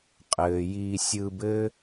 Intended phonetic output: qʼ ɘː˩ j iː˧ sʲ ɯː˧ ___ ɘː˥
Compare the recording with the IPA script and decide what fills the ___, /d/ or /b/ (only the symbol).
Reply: b